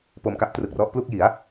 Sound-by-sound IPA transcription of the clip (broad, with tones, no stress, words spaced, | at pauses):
po˧mka˦˥p̚trɯ˨˩k̚rɔ˦˥ʔ plu˥˩k̚ ji˩˦a̯